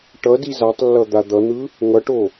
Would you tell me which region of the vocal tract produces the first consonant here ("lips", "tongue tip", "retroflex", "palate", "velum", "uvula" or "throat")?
retroflex